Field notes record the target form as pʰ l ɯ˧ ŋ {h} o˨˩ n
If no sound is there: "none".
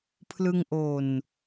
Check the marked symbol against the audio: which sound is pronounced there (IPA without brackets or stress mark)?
ʔ